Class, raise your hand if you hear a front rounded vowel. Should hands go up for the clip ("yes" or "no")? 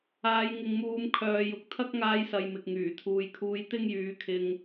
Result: yes